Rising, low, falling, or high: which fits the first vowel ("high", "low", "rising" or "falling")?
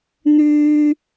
high